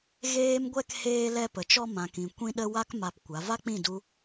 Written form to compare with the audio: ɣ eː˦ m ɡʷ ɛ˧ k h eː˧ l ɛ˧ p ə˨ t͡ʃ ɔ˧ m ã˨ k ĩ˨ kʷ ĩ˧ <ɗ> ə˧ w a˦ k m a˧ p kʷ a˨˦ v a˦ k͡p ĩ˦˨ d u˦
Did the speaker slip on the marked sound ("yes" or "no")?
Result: no